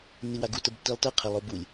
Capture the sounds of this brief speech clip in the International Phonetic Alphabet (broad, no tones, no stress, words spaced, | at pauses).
nːiwaɡu təbtːilˠtɤ qʰəlˠobulʲ